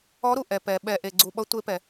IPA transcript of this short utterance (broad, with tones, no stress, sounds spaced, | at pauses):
ɔ˨˦ ɾ u˩ ʔ ɛ˩ p ɛ˩ ɓ ɛ˩ ʔ e˩ ɡ͡ǀ u˩ ɓ ʌ˨˦ tʷ e˨˦ p ɛ˩